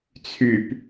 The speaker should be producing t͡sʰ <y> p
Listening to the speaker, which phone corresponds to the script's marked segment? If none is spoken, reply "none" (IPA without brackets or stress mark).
y